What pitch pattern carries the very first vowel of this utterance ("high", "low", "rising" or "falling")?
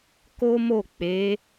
high